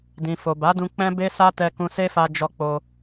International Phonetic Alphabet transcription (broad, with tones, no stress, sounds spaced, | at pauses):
d ĩ˨ f o˨ b a˨˦ d ũ˧ k͡p ɛ̃˦ b e˦ s a˦ t ɛ˧ k ũ˧ s e˦ f a˧ d͡ʒ ɔ˧ k͡p o˧